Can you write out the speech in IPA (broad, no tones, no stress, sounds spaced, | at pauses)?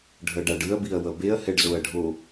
ɖʱ ʌ ɖ a ɖ ɯ ɐ̯ b i ɐ̯ w ʌ b e ɐ̯ h ɛ ɖ z o ɐ̯ ɖʱ o